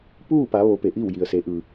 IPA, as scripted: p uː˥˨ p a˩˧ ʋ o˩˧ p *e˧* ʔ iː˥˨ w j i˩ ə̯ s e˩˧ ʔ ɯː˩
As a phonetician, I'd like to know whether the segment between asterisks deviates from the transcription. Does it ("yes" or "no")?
yes